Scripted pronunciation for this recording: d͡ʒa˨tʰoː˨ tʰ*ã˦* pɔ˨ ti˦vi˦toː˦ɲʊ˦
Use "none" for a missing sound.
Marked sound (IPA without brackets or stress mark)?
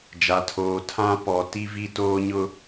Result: ã˦